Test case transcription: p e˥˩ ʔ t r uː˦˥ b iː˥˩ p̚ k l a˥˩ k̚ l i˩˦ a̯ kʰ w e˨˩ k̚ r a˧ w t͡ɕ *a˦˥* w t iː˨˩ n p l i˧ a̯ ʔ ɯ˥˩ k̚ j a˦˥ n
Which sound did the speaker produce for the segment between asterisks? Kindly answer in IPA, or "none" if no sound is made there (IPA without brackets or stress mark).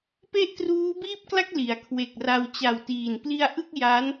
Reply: a˨˩